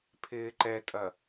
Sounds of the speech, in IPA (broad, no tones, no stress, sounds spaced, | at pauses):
pʰ ɪː ǃ ɛ tʼ ɐ